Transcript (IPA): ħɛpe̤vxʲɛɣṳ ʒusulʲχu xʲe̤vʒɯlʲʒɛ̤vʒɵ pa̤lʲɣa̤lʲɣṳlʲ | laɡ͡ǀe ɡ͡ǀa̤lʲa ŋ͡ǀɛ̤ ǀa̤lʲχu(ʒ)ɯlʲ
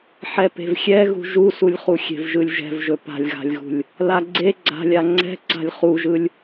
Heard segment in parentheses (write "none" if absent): ʒ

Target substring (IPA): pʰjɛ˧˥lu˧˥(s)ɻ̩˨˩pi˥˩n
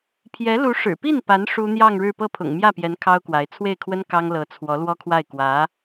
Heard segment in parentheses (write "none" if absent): ʂ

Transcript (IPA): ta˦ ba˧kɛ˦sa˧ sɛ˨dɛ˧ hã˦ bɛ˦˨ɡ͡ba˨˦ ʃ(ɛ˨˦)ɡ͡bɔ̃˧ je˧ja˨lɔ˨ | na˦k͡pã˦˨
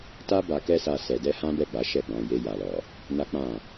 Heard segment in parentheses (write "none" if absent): ɛ˦˨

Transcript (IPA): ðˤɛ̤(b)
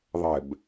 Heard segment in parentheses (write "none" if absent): b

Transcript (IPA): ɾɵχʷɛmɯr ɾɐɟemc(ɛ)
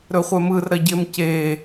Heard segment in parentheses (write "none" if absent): e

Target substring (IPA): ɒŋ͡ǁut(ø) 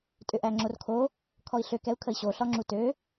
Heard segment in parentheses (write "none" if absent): ø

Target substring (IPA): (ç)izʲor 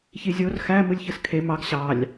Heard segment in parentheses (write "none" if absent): ç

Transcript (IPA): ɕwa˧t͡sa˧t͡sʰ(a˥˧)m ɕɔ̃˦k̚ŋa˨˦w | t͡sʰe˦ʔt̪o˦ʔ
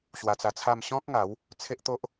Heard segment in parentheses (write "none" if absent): a˥˧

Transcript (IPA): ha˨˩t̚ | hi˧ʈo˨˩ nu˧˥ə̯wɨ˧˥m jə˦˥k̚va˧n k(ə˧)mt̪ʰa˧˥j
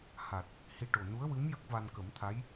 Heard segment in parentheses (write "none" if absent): ə˨˩˦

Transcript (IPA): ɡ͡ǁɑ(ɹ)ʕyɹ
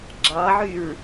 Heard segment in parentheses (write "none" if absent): none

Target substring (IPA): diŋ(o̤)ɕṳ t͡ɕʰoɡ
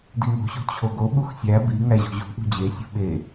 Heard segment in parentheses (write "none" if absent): o̤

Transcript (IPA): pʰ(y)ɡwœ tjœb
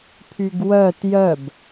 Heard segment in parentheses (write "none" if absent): y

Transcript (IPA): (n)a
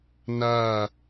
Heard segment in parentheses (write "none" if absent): n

